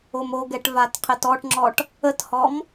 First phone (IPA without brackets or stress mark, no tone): o